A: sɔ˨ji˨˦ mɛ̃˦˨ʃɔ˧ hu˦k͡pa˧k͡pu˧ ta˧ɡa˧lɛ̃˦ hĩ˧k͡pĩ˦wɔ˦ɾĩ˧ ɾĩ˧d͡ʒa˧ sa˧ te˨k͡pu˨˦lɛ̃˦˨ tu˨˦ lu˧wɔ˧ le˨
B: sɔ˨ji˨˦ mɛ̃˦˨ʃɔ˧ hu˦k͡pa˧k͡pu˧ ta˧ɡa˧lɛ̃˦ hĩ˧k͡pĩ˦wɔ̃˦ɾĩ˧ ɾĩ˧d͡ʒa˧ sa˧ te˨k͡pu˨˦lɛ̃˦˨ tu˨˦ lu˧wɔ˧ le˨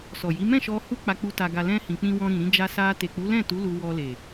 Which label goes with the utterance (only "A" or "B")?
B